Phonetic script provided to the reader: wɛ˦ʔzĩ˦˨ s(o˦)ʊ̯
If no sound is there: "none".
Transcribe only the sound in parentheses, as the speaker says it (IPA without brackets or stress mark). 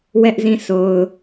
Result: o˨